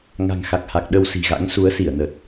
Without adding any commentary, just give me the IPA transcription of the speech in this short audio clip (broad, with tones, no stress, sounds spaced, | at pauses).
ŋ a̤˨˩ ŋ x a˨˩ k̚ h a˨˩ k̚ ɗ ə˧ w s i̤˨˩ ɣ a̰˧˥ ŋ s u˨˦ ə̯ s i˧˩ ə̯ n ə˨˩ t̚